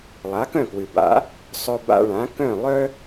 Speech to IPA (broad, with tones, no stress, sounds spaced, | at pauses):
lˠ a˩˥ k œ̃˥˩ k w ɨ˩ b a̰˩˥ | sˤ œ˧ b a̰˧ ɭ ã˩˥ k œ̃˥˩ lˠ œ˥